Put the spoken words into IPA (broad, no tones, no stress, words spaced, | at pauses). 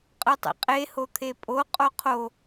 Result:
qʼɯtˤḭqʼe hot̪ʰepʼo qʼoqʰo